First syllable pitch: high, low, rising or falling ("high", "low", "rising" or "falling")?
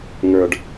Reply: low